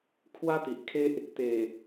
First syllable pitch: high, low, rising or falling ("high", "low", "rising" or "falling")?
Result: high